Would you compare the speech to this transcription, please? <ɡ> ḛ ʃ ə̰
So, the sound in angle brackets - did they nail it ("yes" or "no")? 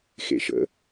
no